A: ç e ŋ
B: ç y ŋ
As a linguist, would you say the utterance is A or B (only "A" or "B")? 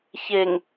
A